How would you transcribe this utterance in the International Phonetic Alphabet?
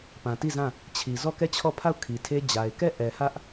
p ã˨ t i˦˨ z ã˦˨ | t͡ɕʰ i˨ z ɔ˦˨ k ɛ˦˨ t͡ɕʰ ɔ˦˨ pʰ a˦˨ ʊ̯ kʰ i˨ tʰ e˦ d͡ʑ a˨ ɪ̯ k ɛ˦˨ ʔ ɛ˨ h ä˦ ʔ

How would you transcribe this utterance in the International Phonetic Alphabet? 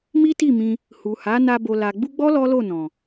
m i˦ t i˦˨ m ĩ˧ | h u˨ h a˨˦ n a˧ b o˨ l a˨ ɡ͡b u˧ ɡ͡b ɔ˦ l ɔ˦ l o˦˨ n ɔ̃˨

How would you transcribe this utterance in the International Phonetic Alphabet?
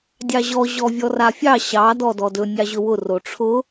dʲ ɑ ʑ ɔ ʑ ɔ vʲ ɔ r a fʲ ɑ ɕ ɑ d ɔ d ɔ d ɵ nʲ ɑ ʑ ɵ w ʊ r o ʈ͡ʂʰ ʊ

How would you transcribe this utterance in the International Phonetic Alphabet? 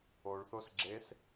o ɭ θ o s ɡ͡ǁ e s

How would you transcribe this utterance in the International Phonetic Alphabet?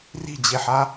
r i̤ d͡ʑ e ħ a

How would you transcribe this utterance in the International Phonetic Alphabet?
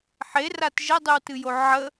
ħ e r a t ʒ ə dˤ ɨ w t ɨ j o ʕ ə

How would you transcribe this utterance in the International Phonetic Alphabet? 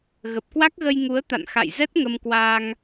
ɣ ə˨˩ p̚ k w a˦˥ k̚ ɣ ə˧ j ŋ u˨˦ ə̯ t̪ a̰˧˨ n x a̰˧˨ j z ɛ˦˥ t̚ ŋ ə˧ m k w a˧ ŋ

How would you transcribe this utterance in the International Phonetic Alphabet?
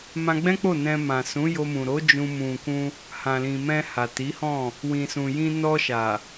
m ã˧ ɡ͡b ɛ̃˦ k͡p o˦˨ n ɛ̃˧ m ã˨ s ũ˨˦ j o˧ m ũ˨ ɾ o˨˦ d͡ʒ ũ˧ m ũ˨ k ũ˧ | h ã˨ l ĩ˨ m ɛ̃˧ h a˨ t i˨˦ h ɔ̃˦˨ | w ĩ˨ s ũ˨ j ĩ˧ n ɔ˧ ʃ a˨

